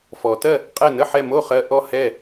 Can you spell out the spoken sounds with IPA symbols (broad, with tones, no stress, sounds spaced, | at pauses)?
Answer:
f ɔ˩˧ t ɜ˥˩ | qʼ ɛ˥˩ n ə˥˩ ħ ɛ˥˩ m o˥˩ χ ɜ˧ ʔ ɔ˥˩ h ɛ˥˩